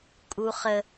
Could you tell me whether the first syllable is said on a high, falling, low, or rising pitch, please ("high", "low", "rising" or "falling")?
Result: low